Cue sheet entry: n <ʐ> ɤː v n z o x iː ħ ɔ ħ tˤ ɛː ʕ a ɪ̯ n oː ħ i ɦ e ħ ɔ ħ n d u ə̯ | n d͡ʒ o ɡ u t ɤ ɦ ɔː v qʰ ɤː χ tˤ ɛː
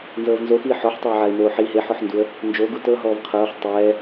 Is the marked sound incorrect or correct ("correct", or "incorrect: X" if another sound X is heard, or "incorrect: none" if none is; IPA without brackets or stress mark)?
incorrect: z